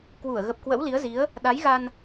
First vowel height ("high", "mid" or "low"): high